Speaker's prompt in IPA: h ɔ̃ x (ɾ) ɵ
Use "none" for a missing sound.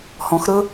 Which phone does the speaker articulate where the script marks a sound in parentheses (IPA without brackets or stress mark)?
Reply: ɾ